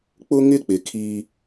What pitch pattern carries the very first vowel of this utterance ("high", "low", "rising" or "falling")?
high